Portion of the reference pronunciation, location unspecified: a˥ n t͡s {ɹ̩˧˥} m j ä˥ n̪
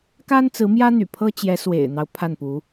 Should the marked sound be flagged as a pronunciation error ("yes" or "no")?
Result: no